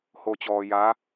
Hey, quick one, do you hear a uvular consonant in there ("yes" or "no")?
no